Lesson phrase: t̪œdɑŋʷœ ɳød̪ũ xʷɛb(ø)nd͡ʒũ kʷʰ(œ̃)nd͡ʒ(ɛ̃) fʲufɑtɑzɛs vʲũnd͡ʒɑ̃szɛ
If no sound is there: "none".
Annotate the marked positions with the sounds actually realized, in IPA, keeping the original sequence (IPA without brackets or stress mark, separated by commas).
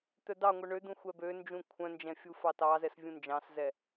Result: ø, œ̃, ɛ̃